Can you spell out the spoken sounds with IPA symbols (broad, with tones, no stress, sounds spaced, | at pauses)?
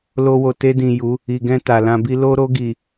l o˧ w o˨ t e˧ d ĩ˨ j u˨˦ | i˨ ɡ ɛ̃˧ t a˨ l ã˧ b i˦ l o˧ ɾ o˧ ɡ i˨